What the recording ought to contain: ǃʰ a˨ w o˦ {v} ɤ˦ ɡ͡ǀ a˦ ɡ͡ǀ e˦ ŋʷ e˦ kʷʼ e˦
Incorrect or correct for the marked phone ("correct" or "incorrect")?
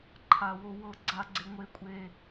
incorrect